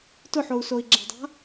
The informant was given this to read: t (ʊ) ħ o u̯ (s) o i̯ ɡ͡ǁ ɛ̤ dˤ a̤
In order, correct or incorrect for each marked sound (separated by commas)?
correct, correct